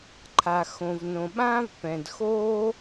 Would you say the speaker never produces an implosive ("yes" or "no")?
no